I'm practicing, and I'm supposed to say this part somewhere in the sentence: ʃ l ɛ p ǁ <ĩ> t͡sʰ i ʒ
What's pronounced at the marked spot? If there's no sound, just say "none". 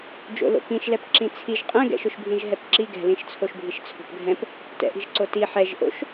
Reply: ĩ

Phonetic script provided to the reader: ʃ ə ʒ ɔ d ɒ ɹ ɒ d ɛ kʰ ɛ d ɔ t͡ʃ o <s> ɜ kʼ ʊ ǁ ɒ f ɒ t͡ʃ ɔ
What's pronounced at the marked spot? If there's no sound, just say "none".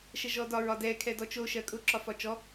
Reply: ʃ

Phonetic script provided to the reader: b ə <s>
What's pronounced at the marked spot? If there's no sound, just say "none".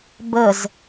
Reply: z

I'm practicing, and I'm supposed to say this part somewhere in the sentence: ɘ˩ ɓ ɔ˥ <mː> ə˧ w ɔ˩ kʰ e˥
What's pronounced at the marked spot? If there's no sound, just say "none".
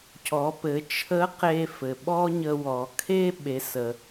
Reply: ɲ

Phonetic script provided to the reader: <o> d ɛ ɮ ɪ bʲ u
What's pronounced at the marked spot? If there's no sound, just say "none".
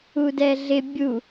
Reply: u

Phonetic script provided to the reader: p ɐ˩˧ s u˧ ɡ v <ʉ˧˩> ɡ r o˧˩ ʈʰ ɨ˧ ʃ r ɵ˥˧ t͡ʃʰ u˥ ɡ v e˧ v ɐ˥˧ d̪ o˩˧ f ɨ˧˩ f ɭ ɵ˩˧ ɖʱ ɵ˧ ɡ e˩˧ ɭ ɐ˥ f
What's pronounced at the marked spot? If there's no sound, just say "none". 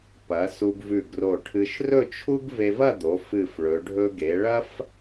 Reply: ʉ˧˩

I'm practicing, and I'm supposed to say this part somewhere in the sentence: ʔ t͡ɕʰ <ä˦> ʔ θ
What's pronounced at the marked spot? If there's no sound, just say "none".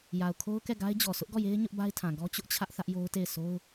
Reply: ä˦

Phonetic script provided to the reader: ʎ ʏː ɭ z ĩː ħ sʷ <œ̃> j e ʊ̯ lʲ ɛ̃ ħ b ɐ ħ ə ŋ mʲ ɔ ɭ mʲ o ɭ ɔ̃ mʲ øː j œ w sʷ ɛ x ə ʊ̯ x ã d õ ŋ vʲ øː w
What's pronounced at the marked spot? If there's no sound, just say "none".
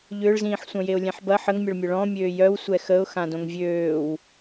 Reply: œ̃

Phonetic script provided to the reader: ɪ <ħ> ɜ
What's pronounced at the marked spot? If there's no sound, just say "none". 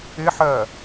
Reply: ħ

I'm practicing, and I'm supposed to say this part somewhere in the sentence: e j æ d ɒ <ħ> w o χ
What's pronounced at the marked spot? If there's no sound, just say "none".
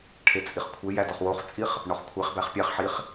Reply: χ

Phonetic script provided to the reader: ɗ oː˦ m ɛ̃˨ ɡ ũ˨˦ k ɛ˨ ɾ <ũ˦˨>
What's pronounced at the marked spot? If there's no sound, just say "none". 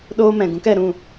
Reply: ũ˦˨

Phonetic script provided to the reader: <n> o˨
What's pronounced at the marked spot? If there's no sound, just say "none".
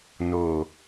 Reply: n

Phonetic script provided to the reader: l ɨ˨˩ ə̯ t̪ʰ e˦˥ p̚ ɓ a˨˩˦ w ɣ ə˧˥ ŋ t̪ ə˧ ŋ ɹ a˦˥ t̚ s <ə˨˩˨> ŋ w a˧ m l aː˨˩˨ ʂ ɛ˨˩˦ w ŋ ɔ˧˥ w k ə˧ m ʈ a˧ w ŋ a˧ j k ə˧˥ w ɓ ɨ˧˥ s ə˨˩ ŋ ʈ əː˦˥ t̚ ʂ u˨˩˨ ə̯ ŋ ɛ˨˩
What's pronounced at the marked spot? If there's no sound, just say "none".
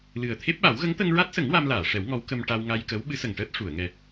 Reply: ə˨˩˦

